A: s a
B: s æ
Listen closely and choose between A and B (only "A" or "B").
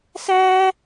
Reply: B